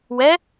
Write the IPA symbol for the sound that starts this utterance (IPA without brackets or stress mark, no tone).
w